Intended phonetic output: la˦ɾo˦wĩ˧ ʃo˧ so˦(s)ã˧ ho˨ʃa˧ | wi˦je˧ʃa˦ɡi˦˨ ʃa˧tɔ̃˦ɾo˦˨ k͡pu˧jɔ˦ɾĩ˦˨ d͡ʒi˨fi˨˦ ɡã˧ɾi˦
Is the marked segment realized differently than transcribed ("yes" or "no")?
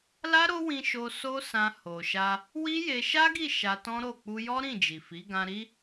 no